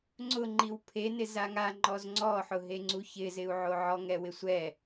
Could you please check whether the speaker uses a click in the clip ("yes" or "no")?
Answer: yes